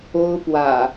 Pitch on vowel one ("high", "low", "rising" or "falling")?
high